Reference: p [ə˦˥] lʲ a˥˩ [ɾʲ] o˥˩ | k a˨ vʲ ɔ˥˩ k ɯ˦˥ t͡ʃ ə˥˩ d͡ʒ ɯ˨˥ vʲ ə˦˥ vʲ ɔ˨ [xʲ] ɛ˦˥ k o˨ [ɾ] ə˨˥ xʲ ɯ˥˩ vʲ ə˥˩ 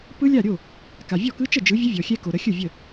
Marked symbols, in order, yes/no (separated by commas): no, yes, yes, yes